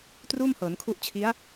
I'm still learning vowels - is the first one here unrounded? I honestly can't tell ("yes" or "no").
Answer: no